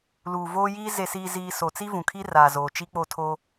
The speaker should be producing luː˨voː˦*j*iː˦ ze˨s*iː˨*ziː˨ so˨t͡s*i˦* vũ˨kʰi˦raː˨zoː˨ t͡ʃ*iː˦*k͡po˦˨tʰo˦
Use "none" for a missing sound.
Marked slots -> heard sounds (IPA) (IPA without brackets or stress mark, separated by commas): j, iː˨, i˦, i˦